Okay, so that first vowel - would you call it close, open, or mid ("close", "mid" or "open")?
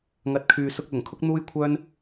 open